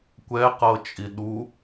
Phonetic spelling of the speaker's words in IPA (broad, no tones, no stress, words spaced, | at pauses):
kʷɛqɤt͡ʃʼi ɗu